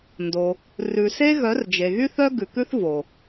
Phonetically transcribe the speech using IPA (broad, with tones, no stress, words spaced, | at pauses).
ndo˧ | rʉ˨se˦ ɣœ˨˦rd͡ʒe˨ɣy˦ θœ˦ɡʉ˨kʉ˦θvo˨